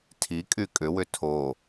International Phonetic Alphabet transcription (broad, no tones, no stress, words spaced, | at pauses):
tʰikʼy kʼʏwʏ tʰo